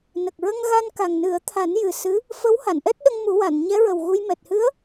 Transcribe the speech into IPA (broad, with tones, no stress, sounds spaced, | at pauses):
n ə˨˩ k̚ ɹ ə˧ ŋ ɣ a˧ n k a˨˩ ŋ n ɨ˨˩˦ ə̯ t̪ʰ a˨˩˦ n j ɨ˨˩ s ɨ˧˥ | f ə˧˥ w h a˨˩˨ n ʔ ɛ˦˥ t̚ ɗ ə˧ ŋ m u˨˩˦ w a˨˩˨ n ɲ ɛ˧˥ ɹ ə˨˩ w ɣ u˧ j m ɛ˨˩ t̚ h ɨ˧˥ ə̯